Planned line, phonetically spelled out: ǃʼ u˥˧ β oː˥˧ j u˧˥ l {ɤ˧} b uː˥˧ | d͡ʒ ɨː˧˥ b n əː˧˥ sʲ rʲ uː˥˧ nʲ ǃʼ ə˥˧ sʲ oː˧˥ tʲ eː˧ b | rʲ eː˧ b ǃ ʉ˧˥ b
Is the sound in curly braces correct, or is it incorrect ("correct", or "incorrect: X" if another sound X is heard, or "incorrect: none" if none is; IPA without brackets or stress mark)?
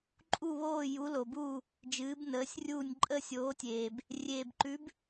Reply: incorrect: o˧